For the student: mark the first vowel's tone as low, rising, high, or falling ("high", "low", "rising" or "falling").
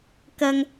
low